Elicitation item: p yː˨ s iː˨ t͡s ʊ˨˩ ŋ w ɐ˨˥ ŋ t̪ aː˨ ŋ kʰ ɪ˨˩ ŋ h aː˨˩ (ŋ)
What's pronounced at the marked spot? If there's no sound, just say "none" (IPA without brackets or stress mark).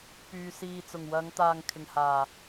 none